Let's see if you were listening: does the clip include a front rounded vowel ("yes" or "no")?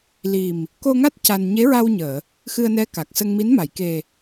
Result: no